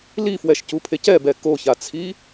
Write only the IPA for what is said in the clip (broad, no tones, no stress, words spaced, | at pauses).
lifwɛʃcupʰec ɛbɛ koçat͡sʰi